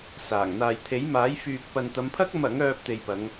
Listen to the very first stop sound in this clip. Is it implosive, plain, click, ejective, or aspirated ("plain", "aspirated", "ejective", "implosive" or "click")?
aspirated